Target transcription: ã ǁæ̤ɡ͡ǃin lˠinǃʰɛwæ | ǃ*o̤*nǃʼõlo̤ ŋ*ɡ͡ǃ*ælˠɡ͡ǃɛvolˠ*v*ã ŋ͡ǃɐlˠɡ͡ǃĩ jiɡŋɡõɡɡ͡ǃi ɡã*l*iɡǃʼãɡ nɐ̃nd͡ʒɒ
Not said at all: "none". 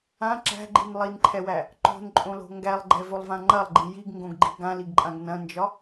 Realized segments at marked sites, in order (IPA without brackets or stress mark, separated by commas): o̤, ɡ, v, l